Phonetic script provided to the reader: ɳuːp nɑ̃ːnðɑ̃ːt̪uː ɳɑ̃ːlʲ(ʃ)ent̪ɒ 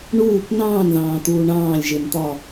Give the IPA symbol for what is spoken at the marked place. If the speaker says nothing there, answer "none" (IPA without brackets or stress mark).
ʒ